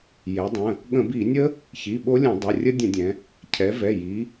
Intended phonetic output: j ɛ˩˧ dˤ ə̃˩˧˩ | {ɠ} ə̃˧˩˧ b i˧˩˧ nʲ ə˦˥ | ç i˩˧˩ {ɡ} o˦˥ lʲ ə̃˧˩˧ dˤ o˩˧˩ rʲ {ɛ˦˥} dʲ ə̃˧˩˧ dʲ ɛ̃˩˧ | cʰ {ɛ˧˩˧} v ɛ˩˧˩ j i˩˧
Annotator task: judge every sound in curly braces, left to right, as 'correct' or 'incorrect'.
correct, incorrect, incorrect, incorrect

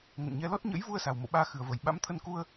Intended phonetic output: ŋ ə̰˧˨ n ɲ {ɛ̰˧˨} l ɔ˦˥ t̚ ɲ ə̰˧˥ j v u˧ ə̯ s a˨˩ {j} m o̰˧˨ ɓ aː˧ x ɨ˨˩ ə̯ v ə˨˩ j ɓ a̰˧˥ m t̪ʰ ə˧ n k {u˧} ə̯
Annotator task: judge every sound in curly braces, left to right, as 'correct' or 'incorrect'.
incorrect, incorrect, correct

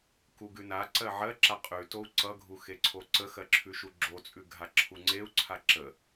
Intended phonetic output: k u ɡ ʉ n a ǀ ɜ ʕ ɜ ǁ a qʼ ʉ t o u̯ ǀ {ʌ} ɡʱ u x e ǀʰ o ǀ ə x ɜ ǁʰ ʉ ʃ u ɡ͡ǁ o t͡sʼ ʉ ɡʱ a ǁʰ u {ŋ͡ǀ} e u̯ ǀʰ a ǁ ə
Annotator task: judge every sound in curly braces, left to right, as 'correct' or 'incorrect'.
correct, correct

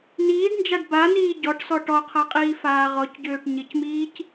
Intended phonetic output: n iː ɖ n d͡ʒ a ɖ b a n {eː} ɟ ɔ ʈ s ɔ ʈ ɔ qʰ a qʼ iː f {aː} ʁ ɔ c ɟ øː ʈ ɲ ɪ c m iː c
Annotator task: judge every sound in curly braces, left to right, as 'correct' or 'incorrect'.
incorrect, correct

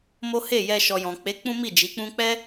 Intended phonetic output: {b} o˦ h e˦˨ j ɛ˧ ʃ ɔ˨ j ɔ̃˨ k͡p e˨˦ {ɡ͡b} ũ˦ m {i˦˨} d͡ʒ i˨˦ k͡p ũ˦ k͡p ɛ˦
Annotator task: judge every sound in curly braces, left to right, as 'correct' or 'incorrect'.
incorrect, incorrect, correct

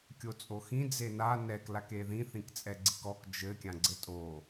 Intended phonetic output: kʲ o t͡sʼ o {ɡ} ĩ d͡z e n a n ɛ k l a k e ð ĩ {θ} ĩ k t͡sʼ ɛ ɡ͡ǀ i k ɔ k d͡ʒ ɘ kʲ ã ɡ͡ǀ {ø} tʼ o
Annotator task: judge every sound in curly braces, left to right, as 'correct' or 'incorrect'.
incorrect, correct, incorrect

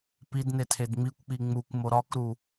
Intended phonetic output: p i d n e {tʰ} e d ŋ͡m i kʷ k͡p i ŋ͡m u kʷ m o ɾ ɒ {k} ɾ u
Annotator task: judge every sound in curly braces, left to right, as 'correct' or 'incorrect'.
correct, correct

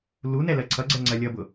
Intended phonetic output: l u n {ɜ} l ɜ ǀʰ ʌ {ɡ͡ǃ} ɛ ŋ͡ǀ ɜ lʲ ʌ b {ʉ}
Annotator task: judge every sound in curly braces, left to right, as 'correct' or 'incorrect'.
incorrect, incorrect, incorrect

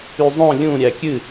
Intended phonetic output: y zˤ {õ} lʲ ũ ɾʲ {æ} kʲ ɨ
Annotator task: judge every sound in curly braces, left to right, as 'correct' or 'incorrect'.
correct, correct

